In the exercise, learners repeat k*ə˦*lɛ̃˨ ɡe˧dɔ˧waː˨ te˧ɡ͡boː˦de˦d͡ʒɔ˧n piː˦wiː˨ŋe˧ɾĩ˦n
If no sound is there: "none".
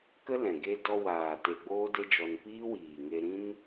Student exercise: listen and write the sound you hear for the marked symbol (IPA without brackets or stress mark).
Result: ə˦